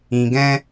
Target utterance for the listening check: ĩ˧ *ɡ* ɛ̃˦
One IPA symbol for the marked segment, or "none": ɡ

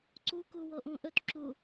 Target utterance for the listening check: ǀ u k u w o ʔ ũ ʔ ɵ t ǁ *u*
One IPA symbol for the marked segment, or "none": u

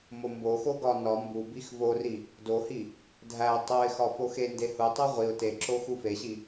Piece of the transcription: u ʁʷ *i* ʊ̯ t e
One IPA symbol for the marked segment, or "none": i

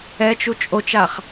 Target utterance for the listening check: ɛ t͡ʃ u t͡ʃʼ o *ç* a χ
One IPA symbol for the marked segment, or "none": t͡ʃ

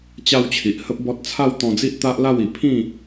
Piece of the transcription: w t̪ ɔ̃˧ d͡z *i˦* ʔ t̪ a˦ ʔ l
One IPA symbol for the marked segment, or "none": i˦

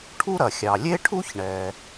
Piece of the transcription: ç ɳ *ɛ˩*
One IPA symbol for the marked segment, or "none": ɛ˩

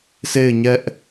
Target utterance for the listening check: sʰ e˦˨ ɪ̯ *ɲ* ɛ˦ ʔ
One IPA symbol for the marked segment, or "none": ɲ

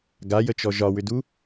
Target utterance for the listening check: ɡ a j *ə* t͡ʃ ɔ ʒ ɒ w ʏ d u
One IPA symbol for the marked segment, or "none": ə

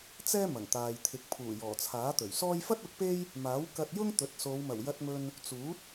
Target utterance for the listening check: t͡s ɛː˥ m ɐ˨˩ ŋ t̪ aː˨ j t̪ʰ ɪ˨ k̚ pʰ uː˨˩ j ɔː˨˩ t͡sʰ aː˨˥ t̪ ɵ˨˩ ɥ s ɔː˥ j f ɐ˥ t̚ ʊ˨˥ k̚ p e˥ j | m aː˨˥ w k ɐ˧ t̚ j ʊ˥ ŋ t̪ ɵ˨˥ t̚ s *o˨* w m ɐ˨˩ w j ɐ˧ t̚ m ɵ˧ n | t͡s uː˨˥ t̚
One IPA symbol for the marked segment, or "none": o˨˧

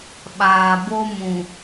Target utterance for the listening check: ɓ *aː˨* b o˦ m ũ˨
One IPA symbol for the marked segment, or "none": aː˨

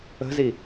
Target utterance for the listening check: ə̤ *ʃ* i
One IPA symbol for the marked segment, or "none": z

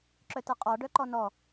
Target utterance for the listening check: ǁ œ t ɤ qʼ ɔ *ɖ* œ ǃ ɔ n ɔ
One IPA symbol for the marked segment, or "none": ɖ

